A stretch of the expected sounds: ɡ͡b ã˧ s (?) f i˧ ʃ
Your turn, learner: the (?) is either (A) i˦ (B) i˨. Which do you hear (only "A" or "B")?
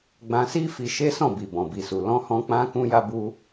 A